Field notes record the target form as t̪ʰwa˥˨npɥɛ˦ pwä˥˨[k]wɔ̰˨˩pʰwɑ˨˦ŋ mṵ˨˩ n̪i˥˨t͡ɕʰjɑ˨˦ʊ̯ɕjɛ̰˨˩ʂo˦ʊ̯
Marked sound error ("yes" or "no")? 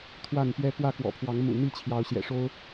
no